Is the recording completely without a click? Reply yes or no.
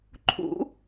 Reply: no